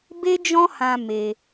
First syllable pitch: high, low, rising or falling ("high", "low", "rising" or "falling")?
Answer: high